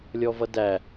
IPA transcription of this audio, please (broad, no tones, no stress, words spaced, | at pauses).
lʲɔvʌdæ